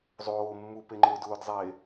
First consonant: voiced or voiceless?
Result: voiced